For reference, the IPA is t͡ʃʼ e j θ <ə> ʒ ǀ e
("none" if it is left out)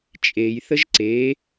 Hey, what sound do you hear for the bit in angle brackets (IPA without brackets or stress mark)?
ə